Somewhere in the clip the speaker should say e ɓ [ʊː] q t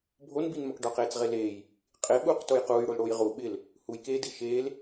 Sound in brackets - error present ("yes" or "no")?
yes